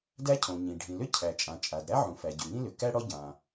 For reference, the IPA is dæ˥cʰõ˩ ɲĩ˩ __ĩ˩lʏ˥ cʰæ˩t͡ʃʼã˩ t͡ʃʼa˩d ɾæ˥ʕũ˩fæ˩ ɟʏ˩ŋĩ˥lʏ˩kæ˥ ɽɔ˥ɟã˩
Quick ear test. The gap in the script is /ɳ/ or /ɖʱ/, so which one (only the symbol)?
ɖʱ